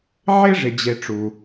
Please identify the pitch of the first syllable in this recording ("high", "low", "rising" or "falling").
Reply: high